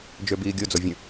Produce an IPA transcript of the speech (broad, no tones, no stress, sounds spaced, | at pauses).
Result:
d͡ʒ ø b iː ɡʲ o d͡z o vʲ ə̃